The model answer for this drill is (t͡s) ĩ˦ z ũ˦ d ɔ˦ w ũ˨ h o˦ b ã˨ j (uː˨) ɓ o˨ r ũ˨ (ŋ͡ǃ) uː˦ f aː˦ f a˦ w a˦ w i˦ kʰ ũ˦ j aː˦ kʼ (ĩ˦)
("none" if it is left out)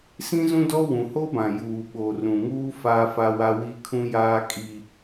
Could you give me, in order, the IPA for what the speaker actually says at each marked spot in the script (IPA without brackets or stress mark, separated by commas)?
s, uː˨, ŋ, i˦